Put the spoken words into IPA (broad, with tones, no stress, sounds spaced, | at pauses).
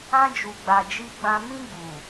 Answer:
ã˧ d͡ʒ u˨ ɡ͡b a˨ d͡ʒ i˧ ɡ͡b ã˧ m ĩ˧ ɡ͡b u˨